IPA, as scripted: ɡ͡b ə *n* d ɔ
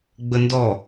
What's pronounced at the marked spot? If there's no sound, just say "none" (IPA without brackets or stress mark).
n